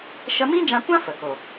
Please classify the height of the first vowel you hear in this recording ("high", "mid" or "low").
mid